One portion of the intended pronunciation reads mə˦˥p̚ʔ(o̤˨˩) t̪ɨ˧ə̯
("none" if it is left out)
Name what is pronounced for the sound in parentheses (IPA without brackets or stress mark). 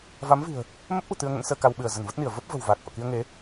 ṳ˨˩